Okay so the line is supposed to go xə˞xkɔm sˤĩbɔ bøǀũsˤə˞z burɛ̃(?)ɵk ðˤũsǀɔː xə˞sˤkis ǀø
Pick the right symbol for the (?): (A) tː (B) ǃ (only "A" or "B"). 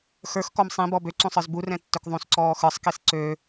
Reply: A